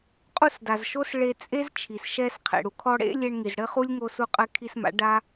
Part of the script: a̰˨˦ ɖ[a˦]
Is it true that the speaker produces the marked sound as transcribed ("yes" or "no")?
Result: yes